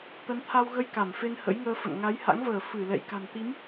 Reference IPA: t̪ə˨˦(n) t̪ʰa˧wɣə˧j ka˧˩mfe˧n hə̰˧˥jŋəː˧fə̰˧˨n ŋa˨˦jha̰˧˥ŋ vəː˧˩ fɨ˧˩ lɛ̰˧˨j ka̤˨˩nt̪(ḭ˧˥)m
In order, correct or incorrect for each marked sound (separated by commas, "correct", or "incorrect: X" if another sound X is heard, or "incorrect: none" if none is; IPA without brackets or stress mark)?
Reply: correct, incorrect: i˨˦